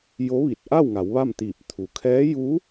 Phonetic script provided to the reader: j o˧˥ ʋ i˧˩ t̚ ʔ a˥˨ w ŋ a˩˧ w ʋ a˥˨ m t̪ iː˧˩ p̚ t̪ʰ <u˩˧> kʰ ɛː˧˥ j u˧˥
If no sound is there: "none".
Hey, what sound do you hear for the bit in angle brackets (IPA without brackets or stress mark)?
u˩